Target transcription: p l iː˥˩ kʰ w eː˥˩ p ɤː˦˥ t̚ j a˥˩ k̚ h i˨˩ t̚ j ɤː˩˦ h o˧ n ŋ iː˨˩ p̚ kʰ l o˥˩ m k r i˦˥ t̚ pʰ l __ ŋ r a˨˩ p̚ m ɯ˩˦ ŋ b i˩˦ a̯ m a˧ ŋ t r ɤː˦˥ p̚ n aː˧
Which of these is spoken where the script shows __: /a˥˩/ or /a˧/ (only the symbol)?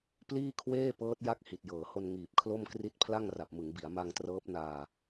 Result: a˥˩